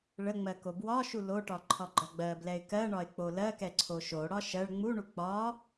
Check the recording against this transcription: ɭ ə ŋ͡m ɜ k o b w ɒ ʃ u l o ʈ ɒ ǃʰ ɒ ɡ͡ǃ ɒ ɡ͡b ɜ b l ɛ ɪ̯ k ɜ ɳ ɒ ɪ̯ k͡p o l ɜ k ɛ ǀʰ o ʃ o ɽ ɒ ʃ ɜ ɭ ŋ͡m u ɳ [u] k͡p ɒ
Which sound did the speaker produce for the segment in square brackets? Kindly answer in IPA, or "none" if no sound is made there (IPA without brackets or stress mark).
u